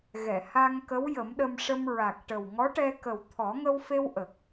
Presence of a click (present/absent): absent